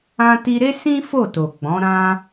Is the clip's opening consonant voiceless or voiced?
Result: voiceless